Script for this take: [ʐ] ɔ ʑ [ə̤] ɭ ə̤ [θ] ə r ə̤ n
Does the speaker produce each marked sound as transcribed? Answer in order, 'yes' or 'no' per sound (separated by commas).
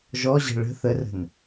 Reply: no, yes, yes